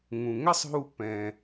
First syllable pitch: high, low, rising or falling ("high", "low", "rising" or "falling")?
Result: low